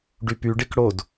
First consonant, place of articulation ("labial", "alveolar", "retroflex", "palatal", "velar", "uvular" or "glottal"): retroflex